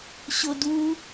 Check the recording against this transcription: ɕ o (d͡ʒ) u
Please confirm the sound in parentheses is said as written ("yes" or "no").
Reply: no